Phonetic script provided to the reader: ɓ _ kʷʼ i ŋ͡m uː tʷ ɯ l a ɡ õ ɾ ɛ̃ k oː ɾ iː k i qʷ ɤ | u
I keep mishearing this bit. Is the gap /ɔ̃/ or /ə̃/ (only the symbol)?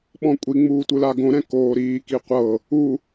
ɔ̃